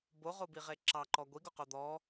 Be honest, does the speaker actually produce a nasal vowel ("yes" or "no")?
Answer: no